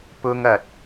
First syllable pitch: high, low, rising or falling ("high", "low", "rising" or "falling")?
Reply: high